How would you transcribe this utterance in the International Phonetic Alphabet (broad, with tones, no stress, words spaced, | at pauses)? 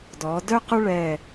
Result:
dɔ˩˧dœ˥ qʊ˥ɭɛ˧˩